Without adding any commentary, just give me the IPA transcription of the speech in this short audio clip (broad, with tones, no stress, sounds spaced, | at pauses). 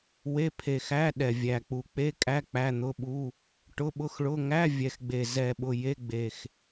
w e˧˥˧ pʰ e˨˩ x æ˧˥˧ ɗ ɛ˨˩ vʲ æ˨˩ k͡p u˨˩ k͡p e˧˥˧ kʼ æ˧˥˧ k͡p æ˧˥˧ n̪ ʊ˧˥˧ ɓ u˧˥˧ | ʈ ʊ˧˥˧ ɓ ʊ˧˥˧ x ɭ ʊ˧˥˧ ŋ æ˧˥˧ vʲ ɛ˨˩ x ɡ͡b e˨˩ z ɛ˨˩ ɓ ʊ˨˩ j e˧˥˧ ɡ͡b e˨˩ x